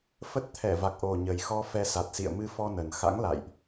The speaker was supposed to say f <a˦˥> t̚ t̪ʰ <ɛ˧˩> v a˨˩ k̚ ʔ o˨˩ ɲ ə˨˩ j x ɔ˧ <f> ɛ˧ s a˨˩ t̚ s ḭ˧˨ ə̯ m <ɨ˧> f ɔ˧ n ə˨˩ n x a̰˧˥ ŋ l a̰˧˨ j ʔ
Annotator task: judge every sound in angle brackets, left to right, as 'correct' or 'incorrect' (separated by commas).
incorrect, correct, correct, correct